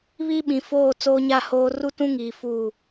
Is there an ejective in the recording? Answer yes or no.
no